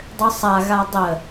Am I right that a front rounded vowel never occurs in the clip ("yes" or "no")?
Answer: no